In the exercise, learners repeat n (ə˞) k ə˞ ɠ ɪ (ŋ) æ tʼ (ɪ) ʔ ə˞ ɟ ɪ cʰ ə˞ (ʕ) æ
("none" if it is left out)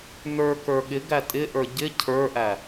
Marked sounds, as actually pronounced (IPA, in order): ə˞, ɡ, ɪ, ʔ

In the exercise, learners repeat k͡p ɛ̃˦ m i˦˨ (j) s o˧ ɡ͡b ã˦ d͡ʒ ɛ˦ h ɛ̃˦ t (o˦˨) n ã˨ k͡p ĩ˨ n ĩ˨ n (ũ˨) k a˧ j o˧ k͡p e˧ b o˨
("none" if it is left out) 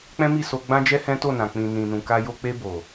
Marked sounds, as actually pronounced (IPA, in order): none, o˦˨, ũ˨

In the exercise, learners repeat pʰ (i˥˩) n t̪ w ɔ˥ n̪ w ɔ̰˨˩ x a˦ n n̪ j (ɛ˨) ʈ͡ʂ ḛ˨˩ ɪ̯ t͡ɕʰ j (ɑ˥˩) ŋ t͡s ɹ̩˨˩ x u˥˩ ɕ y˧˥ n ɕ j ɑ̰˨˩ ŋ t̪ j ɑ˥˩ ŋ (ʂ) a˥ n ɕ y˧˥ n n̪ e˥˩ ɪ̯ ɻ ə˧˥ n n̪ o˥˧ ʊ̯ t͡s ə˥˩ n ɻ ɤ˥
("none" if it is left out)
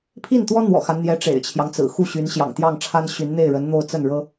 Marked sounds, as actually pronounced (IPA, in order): i˥˩, ɛ˧˥, ɑ˦, ʈ͡ʂʰ

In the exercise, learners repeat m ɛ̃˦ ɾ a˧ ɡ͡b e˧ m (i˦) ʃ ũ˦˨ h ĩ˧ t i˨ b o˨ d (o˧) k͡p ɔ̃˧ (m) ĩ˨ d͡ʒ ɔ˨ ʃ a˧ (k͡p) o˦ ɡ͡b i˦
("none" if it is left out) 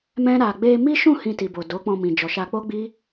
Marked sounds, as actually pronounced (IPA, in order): i˦, o˨˦, m, k͡p

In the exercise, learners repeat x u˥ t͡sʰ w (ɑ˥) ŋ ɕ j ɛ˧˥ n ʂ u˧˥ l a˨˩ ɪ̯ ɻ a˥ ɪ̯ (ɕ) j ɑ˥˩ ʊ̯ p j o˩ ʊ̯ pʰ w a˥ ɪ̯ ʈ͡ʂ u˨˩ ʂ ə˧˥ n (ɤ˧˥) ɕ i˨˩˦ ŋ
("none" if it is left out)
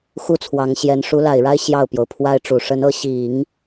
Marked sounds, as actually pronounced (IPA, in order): ɑ˧˥, ɕ, ɤ˧˥

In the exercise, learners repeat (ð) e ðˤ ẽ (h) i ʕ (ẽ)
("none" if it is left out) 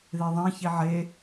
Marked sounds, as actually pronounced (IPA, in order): ð, ç, e

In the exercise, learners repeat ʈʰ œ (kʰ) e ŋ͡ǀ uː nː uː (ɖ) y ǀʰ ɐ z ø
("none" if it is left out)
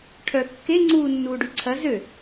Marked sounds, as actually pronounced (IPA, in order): kː, ɖ

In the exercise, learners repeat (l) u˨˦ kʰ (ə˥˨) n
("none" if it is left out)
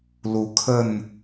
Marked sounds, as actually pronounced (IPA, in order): l, ə˥˨

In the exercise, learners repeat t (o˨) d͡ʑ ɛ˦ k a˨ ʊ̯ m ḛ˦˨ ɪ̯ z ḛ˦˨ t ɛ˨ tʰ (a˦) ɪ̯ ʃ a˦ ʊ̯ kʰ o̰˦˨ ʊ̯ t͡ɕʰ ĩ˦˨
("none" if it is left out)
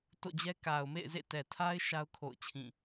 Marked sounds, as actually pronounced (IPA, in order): o̰˦˨, a˦

